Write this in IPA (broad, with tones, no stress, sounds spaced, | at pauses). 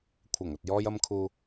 kʷʰ ɐ˨˩ ŋ ɐ˨ t̚ j ɔː˧ j ɐ˧ m kʰ uː˧